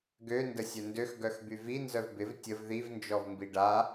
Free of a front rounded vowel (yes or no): no